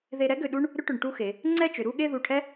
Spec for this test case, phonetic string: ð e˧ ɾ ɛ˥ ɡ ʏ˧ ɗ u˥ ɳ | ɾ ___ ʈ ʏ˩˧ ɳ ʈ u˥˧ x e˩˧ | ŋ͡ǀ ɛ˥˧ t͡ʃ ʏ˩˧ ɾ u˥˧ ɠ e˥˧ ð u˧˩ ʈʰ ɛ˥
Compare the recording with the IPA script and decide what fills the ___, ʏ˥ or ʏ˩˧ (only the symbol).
ʏ˥